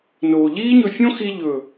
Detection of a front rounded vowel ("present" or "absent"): absent